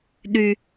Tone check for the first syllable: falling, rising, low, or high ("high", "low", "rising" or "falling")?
low